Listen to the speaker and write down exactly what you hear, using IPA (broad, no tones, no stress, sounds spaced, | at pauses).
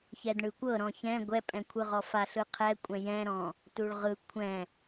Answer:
ç ɛ d ɳ ɯ kʷ ɤ ɾ ɔ̃ ç ɛ̃ ɡʷ ɛ pʼ ɛ̃ kʷʰ ɯ ʁ ɔ f a ɬ ɯ qʰ ɛ kʷʼ ɛ̃ j ɛ̃ ɾ ɔ̃ | t u ɭ ʁ ɯ kʷʰ ɛ̃